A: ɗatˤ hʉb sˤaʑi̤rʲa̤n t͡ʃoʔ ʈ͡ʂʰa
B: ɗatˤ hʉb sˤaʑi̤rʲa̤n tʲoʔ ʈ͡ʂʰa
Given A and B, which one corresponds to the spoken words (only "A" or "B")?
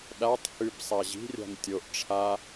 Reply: B